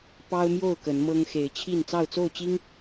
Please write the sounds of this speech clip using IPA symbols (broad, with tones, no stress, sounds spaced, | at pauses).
p ɑ˦ ʊ̯ m j o˥˨ ʊ̯ k ə˨˦ n m ɤ˦ ŋ x e˨˦ ɪ̯ t͡ɕʰ i˥˨ n t͡s ɑ˥˨ ʊ̯ t͡s o˥˨ ʊ̯ t͡ɕ i˦ ŋ